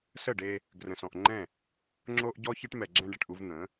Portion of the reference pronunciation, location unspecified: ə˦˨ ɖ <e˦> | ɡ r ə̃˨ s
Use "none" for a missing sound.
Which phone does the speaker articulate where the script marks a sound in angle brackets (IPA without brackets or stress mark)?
e˦